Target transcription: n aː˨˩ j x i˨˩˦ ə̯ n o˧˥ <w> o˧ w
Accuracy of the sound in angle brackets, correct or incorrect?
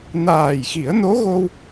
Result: incorrect: ɣ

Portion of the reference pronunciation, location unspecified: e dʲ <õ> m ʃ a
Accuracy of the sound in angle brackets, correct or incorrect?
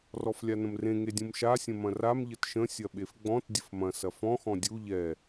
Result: incorrect: ũ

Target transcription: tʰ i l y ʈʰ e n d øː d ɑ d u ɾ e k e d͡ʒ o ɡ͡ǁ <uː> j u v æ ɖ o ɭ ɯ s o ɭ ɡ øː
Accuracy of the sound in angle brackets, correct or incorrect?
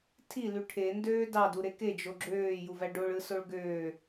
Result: incorrect: øː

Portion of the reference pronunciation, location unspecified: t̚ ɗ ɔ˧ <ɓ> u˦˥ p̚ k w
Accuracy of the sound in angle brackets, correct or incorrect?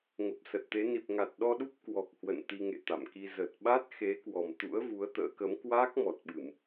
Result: incorrect: ɗ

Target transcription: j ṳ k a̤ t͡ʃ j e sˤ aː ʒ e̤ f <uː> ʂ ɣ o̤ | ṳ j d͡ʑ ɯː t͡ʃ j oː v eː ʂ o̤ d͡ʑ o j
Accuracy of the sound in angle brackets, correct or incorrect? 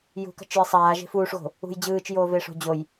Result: correct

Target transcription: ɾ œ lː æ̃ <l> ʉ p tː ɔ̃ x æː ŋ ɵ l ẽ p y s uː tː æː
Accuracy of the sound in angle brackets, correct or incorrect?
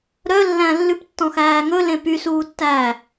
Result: incorrect: lː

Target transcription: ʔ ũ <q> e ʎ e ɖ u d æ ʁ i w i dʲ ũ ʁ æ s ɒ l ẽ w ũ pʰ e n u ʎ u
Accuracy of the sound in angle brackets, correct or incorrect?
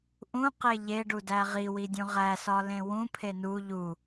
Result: correct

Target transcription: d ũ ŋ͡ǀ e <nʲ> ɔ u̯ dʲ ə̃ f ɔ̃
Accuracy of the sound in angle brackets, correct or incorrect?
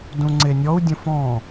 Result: correct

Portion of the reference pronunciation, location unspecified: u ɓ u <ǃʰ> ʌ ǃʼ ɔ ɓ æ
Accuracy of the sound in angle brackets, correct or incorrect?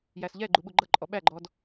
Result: incorrect: ɡ͡ǃ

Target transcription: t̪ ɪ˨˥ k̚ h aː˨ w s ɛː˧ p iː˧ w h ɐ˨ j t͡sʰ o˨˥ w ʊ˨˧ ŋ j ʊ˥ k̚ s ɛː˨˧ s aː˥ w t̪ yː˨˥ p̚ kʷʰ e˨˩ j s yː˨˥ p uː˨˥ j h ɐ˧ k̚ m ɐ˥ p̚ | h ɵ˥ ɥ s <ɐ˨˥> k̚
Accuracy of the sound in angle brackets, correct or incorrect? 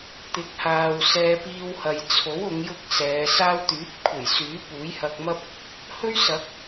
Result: correct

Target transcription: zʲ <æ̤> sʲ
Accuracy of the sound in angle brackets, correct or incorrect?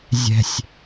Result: incorrect: ɛ̤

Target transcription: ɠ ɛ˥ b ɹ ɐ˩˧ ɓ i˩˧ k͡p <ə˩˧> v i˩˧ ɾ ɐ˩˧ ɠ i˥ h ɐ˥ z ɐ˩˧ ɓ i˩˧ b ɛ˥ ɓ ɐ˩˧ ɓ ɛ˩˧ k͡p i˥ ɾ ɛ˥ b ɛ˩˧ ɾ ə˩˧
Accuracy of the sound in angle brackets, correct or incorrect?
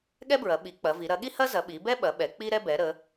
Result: incorrect: ɐ˩˧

